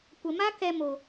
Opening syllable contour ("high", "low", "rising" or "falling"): low